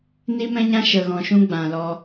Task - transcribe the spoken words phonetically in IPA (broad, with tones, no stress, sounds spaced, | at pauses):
n i˦ m ɛ̃˦ ɲ ã˦ ʃ ə˨ ɣ ɔ̃˨ ʃ ũ˧ ɡ͡b ã˨ l ɔ˧